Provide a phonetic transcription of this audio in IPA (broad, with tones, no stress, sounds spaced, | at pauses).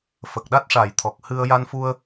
f ə˨˩ k̚ ɗ a˦˥ t̚ ʂ a˨˩˨ j t̪ʰ ɔ˨˩ k̚ h ɨ˧ ə̯ j a˧ n f u˧ ə̯